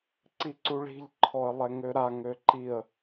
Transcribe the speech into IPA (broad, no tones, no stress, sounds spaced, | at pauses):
ǀ i ǀ u ɭ i̤ ʎ ǃʰ ɔ ə̯ lˠ ɛ ŋ ø ɾ a ŋ ø ǃ i ə̯